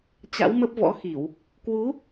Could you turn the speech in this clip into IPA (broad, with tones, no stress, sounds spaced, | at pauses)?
t͡ɕ a̰˧˥ w m ə˦˥ p̚ v ɔ̰˧˥ x i˧˩˨ w | k w u˨˦